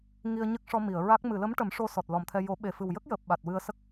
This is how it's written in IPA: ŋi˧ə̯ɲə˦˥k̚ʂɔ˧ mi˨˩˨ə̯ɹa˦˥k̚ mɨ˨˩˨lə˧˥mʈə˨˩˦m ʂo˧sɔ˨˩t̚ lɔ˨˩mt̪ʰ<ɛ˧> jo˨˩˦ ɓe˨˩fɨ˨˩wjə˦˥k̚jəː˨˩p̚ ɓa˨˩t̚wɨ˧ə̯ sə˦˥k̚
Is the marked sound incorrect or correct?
correct